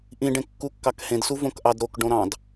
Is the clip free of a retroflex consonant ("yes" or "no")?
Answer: no